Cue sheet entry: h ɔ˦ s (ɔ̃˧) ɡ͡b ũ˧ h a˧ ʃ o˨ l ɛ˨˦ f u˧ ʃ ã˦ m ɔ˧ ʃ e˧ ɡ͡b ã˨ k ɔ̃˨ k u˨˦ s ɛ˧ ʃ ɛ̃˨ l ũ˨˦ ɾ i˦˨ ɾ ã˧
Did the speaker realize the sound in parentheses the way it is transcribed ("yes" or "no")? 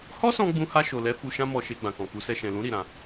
yes